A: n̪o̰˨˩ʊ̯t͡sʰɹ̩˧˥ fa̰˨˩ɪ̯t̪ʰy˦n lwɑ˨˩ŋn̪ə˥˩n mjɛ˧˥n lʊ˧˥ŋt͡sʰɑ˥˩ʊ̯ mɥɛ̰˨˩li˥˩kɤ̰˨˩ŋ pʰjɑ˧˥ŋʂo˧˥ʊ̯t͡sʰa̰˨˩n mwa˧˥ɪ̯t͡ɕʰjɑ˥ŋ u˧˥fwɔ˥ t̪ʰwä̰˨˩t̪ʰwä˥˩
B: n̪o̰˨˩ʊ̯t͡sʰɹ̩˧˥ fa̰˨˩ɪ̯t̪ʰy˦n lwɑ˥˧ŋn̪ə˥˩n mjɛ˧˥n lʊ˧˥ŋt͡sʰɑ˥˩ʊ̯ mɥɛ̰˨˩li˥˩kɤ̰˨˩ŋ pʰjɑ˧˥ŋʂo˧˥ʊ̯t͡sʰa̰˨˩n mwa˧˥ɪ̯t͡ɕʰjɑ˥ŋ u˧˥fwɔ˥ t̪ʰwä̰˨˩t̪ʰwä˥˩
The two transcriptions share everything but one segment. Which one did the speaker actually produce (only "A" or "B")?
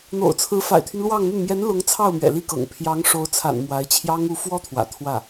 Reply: B